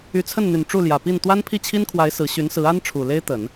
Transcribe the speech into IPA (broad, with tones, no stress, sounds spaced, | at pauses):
y˧˥ t͡sʰ ə˥˩ n n̪ y˨˩ n ʈ͡ʂ u˥˩ l j ä˨˩ p i˥˩ n t̪ w a˥ n pʰ i˥˩ t͡ɕʰ i˥ n kʰ w a˧˥ ɪ̯ s ɹ̩˧˥ ɕ y˧˥ n s ɹ̩˧˥ a˥ n ʈ͡ʂʰ u˨˩ l e˥ ɪ̯ t̪ ə˨˩˦ n